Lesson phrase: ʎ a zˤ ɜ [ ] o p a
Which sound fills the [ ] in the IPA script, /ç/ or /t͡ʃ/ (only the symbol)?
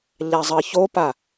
ç